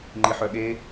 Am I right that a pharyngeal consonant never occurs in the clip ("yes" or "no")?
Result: no